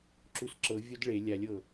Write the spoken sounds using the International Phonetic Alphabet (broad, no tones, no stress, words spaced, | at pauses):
ǁusǁɤvʲod ɭe lʲalʲɤ